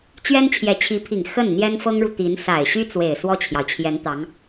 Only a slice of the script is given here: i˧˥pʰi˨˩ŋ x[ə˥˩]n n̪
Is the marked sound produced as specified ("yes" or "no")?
yes